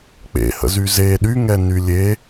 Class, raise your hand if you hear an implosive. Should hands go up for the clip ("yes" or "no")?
yes